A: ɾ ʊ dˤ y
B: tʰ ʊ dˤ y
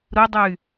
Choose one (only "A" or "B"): A